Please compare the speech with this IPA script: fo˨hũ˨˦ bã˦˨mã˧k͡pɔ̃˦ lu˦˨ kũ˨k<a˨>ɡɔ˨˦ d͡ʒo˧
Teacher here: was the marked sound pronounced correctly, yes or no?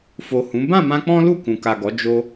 yes